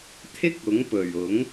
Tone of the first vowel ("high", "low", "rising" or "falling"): high